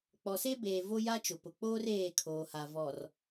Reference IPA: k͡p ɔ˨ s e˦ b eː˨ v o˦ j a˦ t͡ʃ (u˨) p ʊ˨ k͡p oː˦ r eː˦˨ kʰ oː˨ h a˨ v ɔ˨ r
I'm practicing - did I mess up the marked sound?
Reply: yes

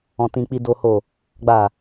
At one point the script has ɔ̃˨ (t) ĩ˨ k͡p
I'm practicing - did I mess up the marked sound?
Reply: no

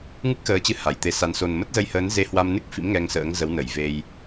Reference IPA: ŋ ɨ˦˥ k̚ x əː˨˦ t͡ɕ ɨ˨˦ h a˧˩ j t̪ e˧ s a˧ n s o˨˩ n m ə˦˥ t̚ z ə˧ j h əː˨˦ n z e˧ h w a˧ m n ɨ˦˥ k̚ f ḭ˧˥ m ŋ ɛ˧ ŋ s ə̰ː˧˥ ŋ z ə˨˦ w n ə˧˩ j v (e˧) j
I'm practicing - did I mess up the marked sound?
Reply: no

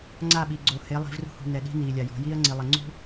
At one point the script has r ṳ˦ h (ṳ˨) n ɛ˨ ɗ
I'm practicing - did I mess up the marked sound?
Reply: no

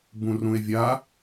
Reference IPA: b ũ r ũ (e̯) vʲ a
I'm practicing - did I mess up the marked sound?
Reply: no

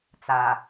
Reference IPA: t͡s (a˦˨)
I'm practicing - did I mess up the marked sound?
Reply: yes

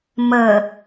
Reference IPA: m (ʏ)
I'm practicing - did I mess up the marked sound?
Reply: yes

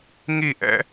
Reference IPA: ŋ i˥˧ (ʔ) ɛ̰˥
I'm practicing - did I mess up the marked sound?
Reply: no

